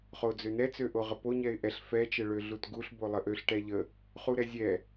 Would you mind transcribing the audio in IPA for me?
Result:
χ o d͡z ø n ɛ t͡s ø ʔ o ʁ ə p o ɲ ɛ ɪ̯ ʔ ɛ ɬ f ɛ t͡ʃ ə ɭ ø ɮ u t ɡ u ɬ b o lˠ ə ʔ ø ɬ ʈ ɛ ʎ ə | χ u ɾ ɛ zʲ ɛ

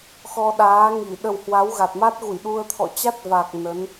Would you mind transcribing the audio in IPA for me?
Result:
x ɔ˧ ɗ aː˨˦ ŋ i˧˩ ɗ ə˨˩ w h w a˨˦ w ɣ a˨˩ t̚ m a˦˥ t̚ ɣ u˧˩ j ɗ u˧ ə̯ t̪ʰ ɔ̰˧˨ t͡ɕ a˦˥ t̚ v a˨˩ k̚ n ə˨˦ n

